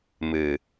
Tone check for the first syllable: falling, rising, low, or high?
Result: low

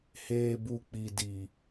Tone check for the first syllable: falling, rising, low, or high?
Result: low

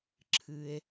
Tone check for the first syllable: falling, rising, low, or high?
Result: low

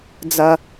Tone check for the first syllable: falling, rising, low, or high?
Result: high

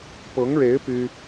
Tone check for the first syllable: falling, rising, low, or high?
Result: rising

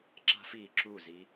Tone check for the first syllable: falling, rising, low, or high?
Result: high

